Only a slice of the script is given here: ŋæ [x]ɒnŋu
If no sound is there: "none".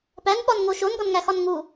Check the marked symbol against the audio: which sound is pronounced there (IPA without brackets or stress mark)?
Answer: x